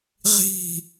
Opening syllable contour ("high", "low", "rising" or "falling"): falling